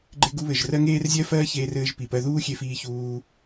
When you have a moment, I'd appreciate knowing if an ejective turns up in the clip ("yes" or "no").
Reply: no